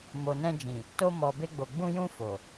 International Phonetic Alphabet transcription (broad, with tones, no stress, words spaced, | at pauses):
mo˨nɛ̃˧d͡ʒĩ˨ | to˧mɔ˨be˧ɡ͡bo˨ ɡ͡bũ˧jũ˧ fo˨